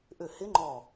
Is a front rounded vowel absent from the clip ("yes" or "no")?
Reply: no